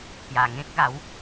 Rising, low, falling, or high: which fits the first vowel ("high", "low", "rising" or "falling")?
low